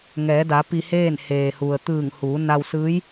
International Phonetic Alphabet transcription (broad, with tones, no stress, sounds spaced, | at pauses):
ŋ ɛː˩˧ d a˩˧ p i˧ h eː˥˨ n h eː˩ h u˩ ə̯ t̪ ɯː˧˩ ŋ h uː˩˧ n a˧ w s ɯː˧˥ j